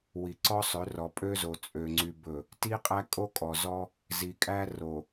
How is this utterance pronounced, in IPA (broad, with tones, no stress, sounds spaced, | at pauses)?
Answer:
w i˨ ǀ ɔ˦ sˤ ø˨˦ r ɔ˨ pʼ ø˦ z o˨ t͡sʼ ø˨ ŋ͡ǀ y˨ b ɵ˨ | t i˦ qʼ æ˦ kʼ o˦ kʼ ɔ˨ z ɔ˦ | z i˨ kʼ æ˦ r o˨